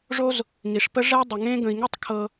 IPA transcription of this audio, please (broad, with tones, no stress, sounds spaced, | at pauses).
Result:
ʐ o˦ z | ŋ i˩ ʂ p ə˦ ʐ ɛ˦ dˤ ə˩ ŋ ẽ˦ ɡ ə̃˨ i̯ ŋ ɛ˥ tˤ kʰ ɤ˨